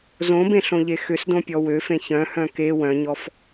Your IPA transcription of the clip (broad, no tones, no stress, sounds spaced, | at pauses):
z õ b ẽ ɬ õ ʎ e x ʏ s d õ pʲ ɔ w ø f ẽ ç œ̃ h œ̃ k e w œ̃ ɲ ɔ f